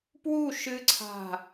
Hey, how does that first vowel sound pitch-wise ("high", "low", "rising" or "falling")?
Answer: falling